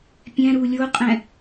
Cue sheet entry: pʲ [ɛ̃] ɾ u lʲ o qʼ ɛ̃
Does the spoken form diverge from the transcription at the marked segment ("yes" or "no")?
no